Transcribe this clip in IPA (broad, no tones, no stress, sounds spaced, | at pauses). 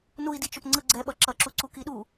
n u i̯ d i t͡ʃ o p ŋ͡ǀ ɯ ɡ͡ǀ ɛ ɓ ʌ ǁ ʌ ǁ u ǀ u k i ɗ u